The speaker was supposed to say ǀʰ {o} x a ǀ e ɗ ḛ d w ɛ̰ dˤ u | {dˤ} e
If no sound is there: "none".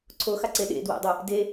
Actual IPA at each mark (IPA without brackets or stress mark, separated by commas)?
o, d